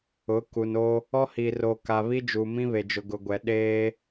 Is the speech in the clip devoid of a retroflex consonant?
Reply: yes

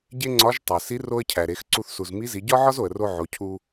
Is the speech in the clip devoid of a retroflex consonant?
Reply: yes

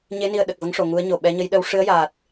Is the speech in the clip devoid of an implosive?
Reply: no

